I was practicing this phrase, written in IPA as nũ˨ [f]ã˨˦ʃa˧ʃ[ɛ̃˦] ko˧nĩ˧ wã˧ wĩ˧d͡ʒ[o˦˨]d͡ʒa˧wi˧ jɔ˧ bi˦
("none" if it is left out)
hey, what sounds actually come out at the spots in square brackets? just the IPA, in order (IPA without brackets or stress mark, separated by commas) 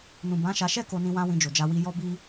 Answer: b, ɛ˦, o˨